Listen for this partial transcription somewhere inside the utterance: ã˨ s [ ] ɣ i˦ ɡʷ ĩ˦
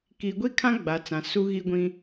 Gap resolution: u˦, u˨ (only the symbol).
u˦